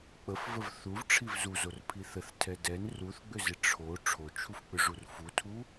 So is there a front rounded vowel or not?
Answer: yes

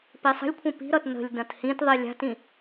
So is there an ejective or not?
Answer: no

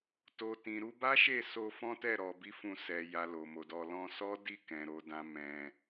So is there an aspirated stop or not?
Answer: no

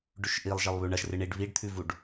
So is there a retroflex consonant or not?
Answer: yes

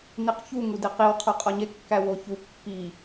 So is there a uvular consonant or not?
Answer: yes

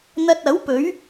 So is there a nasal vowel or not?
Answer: no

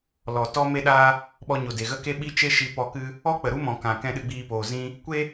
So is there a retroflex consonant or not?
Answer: no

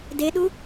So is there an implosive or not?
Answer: yes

